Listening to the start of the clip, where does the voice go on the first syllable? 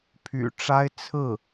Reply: low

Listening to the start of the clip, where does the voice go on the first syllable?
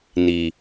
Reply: low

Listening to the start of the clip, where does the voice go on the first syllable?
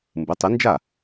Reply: rising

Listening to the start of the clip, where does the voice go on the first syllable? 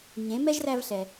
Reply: rising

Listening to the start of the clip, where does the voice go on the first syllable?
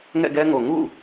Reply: falling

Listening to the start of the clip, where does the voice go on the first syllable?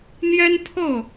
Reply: high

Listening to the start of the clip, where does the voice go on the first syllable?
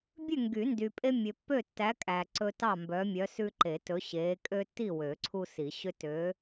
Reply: falling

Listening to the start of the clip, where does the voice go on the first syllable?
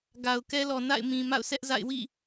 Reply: low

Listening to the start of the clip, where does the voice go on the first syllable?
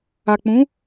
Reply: low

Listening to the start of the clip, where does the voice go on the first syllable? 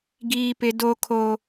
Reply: high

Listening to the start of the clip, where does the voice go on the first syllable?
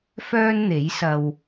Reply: high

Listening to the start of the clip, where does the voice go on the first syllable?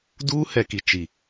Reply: high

